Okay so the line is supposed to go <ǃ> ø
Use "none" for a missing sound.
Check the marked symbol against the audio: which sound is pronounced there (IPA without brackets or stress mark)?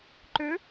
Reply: ǃ